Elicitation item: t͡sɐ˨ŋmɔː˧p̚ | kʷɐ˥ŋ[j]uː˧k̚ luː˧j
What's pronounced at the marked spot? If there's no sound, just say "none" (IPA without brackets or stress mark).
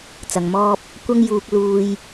j